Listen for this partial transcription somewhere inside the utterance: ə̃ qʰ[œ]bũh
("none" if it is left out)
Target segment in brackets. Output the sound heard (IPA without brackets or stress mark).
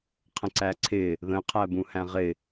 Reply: æ